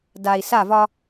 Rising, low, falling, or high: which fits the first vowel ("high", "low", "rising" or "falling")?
low